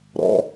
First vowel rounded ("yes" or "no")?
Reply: yes